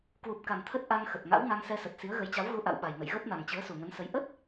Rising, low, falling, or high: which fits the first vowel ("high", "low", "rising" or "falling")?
low